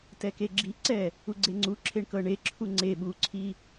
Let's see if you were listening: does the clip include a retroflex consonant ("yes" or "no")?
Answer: yes